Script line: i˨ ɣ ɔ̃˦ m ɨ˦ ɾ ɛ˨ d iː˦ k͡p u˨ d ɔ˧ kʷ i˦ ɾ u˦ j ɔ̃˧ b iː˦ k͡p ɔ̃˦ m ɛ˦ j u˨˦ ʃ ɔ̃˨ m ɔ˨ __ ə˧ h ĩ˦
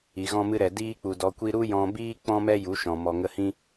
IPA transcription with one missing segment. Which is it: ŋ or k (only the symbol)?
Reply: ŋ